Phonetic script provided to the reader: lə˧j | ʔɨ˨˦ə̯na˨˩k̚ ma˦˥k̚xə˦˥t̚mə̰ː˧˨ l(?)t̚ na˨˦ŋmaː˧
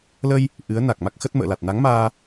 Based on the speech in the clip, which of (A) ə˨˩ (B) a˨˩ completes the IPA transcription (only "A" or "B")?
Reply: B